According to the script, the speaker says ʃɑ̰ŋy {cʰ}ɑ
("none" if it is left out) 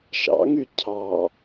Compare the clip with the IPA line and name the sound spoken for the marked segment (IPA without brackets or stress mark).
cʰ